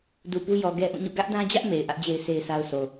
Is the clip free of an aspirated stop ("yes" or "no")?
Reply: yes